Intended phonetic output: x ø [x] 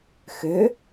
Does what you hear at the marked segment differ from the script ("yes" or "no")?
yes